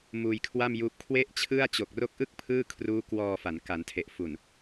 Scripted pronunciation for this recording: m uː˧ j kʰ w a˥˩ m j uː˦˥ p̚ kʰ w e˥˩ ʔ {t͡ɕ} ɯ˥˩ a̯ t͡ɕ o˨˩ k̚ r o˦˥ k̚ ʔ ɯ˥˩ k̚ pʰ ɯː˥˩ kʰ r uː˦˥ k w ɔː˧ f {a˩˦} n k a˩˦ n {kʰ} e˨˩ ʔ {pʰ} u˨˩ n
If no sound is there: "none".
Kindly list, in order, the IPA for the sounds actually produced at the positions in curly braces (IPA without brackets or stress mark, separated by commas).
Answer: t͡ɕʰ, a˩˦, tʰ, f